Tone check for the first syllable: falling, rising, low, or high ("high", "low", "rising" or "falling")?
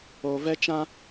low